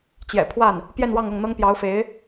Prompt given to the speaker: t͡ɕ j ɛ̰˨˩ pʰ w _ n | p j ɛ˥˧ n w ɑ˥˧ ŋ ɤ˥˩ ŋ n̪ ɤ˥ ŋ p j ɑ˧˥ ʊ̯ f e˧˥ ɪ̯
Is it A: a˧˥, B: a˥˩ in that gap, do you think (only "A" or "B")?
B